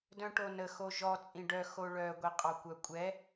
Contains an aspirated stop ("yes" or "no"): no